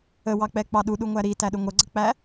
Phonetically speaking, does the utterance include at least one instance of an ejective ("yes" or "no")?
no